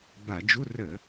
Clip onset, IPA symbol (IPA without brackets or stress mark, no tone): b